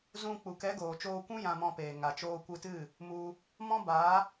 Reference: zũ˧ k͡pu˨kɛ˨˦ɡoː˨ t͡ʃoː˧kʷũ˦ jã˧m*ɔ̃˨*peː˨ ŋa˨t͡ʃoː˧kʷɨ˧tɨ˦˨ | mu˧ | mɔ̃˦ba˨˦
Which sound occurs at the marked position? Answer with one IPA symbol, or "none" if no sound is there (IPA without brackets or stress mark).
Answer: ɔ̃˧